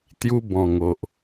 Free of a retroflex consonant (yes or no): yes